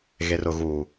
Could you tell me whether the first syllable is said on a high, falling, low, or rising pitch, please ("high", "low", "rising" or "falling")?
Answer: low